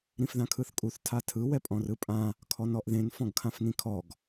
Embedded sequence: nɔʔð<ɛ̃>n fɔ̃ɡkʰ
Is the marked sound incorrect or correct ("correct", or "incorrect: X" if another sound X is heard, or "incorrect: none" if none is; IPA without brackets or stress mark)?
incorrect: ẽ